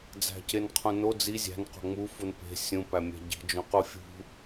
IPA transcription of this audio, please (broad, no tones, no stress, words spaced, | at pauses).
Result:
d͡zæ̤cenqʰũno d͡zi zʲæ̤n qo̤ŋ͡mu funpe̤ sʲũ pæmʲæ̤ɟi̤ d͡ʒũqufʲṳ